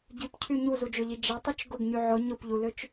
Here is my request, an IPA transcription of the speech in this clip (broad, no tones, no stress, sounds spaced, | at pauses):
ɟ y p cʰ y ɲ u z u d͡ʒ ø ʎ i d͡ʒ ɐ tˤ ʊ t͡ʃ ɡ ʊ ɡ ɲ y ʕ ʊ ɲ ʊ p ʎ u l ø t͡ʃ